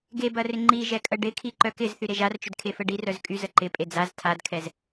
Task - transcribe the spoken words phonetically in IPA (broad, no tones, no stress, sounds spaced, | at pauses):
ɡ e b ɐ r ɪ ŋ͡ǃ i ʒ ɛ kʼ ə ɖ ɪ kʰ i ǃ œ k ɪ z θ y ɾ e ʒ a r t͡ʃ ʏ d kʰ e f ə ɖ i r œ z kʼ y z ə ǃ ɪ pʼ e d͡z a z tʰ a d kʰ ɛ z